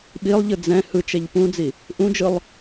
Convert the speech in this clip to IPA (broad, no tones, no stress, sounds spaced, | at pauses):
ɓ i lˠ ʎ ɯ d͡z ɛ̃ h ɯ t͡ʃ ɛ ʎ p ũ d͡z i | ʔ ũ d͡ʒ ɯ lˠ